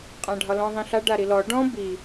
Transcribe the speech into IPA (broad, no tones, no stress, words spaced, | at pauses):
qʼãɖʱɒlɔ̃ ðˤĩɬa ɖaɾilɔ ɖɔ̃ bi